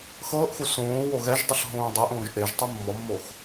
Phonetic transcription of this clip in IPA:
x ɤː ʔ x u s õː w o ɣ ɛ ʒ dˤ ʏ ɬ ɦ õː dˤ e ʔ õː ʒ ʔ e ʒ tˤ u mː ɔ mː o x

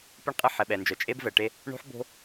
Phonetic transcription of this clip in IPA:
p e˦ ɳ qʼ ɛ˦ ħ ɛ˨ ɓ ɛ˨ n d͡ʒ œ˨ t͡ʃʼ e˦ b v ɛ˨ ʈ e˦ | ɳ o̤˦ ħ b o̤˦

